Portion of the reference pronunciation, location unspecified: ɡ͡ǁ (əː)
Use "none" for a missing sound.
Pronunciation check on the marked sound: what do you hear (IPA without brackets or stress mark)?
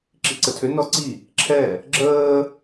əː